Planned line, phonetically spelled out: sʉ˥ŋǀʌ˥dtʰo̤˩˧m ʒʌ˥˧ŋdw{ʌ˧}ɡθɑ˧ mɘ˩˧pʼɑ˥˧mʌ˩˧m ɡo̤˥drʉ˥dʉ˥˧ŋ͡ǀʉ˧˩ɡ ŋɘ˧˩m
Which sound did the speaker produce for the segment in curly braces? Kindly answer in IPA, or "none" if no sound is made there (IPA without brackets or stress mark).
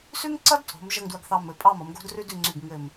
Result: ʌ˧